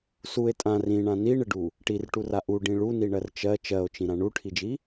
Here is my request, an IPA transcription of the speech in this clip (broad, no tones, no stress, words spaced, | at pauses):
sue̯ tʼã rĩɳã niɳɪɖu | ʈirʈura ʔuɖĩ ɭuniɳɜr t͡ʃɜ t͡ʃɜo̯t͡ʃĩɾã ɳuʈʰid͡ʒi